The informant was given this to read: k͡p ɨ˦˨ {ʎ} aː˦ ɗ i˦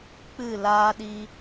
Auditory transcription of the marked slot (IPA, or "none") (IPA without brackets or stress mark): l